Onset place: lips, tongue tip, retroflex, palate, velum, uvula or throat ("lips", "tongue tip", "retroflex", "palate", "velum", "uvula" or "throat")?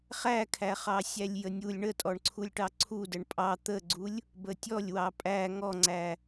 uvula